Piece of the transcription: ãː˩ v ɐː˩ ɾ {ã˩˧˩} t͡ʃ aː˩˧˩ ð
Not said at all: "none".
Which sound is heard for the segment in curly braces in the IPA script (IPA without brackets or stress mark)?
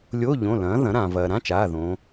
ã˧˥˧